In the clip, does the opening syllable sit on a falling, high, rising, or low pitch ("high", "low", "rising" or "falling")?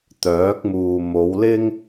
rising